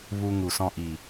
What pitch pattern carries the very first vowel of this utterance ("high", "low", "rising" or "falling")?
low